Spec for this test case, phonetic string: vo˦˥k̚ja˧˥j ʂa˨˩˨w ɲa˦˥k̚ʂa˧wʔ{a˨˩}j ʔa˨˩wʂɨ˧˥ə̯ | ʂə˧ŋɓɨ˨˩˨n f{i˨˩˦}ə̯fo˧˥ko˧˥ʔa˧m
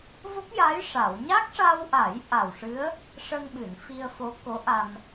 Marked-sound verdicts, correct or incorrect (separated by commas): incorrect, incorrect